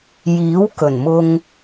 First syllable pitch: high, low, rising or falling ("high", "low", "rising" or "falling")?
rising